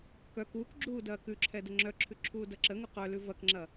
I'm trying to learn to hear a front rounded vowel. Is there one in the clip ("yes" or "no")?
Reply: yes